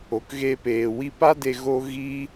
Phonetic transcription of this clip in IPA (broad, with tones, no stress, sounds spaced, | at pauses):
o˨ k ɣ e˧ p eː˨ w i˧ p a˦ d e˧ ɣ o˦ ɣ i˦